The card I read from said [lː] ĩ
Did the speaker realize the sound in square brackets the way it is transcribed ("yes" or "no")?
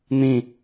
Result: no